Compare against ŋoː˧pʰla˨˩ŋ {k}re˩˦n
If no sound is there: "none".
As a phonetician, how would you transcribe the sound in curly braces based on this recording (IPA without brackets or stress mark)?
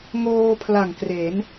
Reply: k